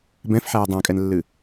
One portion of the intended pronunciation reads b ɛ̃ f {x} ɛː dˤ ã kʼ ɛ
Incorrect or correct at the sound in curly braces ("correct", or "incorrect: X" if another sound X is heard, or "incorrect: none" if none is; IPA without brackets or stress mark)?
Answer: incorrect: ħ